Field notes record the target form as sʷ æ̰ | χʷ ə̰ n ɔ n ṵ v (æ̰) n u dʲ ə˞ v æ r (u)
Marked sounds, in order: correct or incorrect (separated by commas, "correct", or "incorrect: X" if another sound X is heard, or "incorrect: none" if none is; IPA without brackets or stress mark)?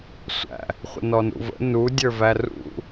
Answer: incorrect: ə̰, incorrect: ṵ